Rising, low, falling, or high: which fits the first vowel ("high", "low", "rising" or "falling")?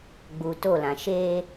low